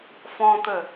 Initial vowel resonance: nasal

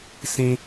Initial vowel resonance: nasal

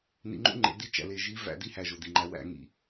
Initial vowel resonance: oral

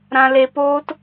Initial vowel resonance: nasal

